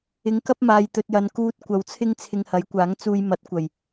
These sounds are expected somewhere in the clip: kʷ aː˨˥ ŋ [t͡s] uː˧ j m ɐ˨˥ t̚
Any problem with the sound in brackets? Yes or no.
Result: no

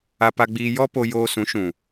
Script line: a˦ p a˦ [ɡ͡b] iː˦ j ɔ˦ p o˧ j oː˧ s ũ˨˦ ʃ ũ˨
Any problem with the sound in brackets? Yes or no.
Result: no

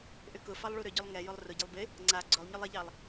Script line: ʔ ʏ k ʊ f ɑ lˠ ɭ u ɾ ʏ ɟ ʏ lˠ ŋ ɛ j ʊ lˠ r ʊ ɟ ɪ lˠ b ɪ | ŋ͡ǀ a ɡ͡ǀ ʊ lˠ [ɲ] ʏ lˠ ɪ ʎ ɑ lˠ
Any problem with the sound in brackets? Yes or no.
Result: no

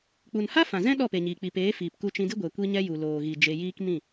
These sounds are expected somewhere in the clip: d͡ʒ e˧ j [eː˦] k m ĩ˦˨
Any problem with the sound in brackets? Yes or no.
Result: yes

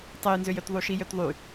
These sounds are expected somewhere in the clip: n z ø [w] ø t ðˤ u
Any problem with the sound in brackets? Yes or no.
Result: yes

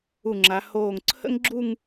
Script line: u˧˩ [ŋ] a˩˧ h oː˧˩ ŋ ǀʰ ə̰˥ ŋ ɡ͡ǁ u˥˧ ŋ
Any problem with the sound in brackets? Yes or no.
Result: yes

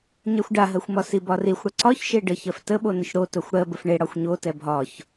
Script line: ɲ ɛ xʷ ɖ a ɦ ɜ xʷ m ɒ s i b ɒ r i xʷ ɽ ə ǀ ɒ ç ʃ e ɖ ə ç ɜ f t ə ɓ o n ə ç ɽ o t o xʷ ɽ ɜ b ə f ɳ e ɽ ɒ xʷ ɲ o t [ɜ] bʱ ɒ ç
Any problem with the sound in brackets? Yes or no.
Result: yes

